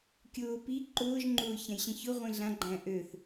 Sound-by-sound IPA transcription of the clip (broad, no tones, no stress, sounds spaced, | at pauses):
kʲ ʊː p i ǃ ʊː ʒ ŋ͡ǃ ʊː ç ã j ɕ ĩ ç ʊ ʁʷ ĩ ɮ ã ɡ͡ǃ æ̃ ʔ ø θ